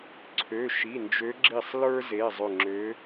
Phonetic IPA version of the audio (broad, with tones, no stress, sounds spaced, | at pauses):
ǀʰ ø˩˧˩ ʃ i˩˧˩ n d͡ʒ ø˨˦ ɡ͡ǁ i˧˩ sˤ l ə˞˦ z e˩˧˩ zˤ ʏ˧˩ ŋ͡ǁ ø˨˦